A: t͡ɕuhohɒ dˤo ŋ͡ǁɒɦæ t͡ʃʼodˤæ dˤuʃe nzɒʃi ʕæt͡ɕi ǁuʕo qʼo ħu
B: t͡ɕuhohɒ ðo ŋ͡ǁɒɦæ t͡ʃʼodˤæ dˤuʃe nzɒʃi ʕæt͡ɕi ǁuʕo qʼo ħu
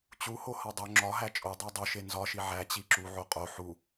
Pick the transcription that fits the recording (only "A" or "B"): A